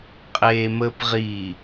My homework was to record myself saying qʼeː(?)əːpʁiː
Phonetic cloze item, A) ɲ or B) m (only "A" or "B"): B